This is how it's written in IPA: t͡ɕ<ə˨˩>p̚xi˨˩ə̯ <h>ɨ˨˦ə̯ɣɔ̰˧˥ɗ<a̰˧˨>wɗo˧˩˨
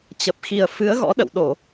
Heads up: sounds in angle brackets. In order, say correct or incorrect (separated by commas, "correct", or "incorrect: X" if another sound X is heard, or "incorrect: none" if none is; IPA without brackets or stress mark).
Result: correct, incorrect: f, incorrect: ə̰˧˨